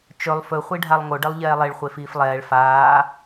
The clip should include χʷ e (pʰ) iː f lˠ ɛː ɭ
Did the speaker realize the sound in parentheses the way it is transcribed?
no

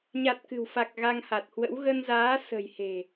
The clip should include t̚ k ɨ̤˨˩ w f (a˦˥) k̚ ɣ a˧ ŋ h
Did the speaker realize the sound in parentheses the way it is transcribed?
no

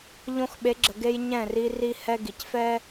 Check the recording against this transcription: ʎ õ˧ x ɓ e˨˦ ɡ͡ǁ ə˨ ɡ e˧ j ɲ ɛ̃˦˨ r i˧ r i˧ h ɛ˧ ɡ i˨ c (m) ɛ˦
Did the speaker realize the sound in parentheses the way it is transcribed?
no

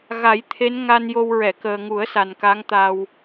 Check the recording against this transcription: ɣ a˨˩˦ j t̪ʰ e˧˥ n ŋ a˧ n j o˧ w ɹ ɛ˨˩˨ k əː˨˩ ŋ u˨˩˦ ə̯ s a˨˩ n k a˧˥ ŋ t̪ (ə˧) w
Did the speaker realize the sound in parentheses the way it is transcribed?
no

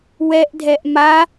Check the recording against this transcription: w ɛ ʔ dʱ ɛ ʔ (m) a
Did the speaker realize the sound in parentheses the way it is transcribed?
yes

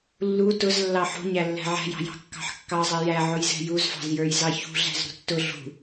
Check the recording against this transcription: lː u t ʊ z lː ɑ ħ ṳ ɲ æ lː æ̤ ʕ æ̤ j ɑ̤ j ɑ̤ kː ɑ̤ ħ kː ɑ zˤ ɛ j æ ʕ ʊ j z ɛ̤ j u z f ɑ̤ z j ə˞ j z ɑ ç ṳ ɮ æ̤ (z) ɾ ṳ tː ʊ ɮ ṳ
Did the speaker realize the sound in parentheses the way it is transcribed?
yes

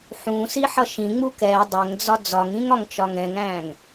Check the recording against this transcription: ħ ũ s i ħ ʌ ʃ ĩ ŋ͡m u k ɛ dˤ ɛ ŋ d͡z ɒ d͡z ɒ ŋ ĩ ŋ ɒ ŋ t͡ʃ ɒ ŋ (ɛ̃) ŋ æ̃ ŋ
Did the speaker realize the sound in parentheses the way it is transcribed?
yes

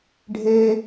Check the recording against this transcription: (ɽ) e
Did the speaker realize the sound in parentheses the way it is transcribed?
no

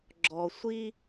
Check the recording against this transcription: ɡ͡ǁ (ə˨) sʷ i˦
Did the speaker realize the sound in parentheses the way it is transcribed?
no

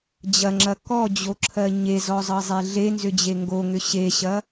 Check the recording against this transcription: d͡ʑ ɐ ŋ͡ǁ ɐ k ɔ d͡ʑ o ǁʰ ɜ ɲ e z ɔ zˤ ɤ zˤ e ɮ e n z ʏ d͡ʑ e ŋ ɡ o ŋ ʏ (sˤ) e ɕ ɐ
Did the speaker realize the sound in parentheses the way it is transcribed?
no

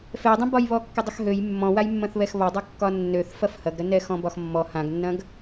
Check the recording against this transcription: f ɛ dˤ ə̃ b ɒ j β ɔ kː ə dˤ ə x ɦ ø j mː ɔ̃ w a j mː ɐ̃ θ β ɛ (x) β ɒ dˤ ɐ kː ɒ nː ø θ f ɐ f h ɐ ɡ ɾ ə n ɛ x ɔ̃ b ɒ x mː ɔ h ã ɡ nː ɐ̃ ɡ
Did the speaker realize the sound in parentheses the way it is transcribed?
yes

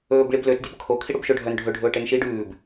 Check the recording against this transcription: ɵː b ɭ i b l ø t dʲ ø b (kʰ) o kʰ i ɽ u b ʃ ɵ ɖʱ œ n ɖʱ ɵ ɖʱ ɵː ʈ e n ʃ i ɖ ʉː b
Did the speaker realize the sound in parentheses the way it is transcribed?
yes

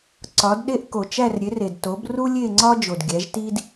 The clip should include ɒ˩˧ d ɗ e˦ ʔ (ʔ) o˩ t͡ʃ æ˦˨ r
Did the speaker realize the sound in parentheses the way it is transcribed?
no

